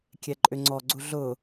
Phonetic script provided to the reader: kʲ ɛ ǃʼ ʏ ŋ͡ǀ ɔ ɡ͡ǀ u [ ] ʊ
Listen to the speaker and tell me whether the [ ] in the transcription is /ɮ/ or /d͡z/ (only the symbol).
ɮ